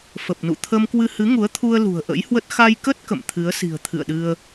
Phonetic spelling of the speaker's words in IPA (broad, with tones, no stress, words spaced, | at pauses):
fə˨˩p̚nṵ˧˨ t̪ʰə˧mkwɨ˧hɨ˨˦ ŋu˨˦ə̯t̪ʰu˧ə̯ lṳ˨˩ə̯ʔə̰˧˥jhwə˦˥t̚ xa˧jkə˦˥t̚ kə̰˧˨m t̪ʰɨ˨˦ə̯si̤˨˩ə̯ t̪ʰɨ̰˧˨ə̯ɗɨ˧ə̯